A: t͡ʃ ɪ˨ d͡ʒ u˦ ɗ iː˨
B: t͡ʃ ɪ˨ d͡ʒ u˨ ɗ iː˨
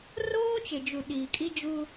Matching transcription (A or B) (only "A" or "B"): B